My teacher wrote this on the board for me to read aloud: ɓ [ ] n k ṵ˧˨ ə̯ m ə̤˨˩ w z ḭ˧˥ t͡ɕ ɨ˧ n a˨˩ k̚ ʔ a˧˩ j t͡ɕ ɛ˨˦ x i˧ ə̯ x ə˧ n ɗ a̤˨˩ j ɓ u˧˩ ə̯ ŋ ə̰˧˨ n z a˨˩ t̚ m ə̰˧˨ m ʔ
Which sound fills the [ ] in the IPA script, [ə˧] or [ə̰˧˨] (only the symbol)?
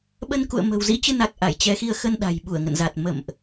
ə˧